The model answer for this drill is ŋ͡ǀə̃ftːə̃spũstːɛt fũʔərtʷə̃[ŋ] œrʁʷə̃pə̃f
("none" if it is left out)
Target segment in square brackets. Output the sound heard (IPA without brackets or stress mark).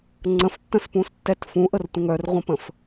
ŋ